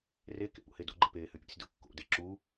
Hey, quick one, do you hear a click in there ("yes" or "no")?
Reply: yes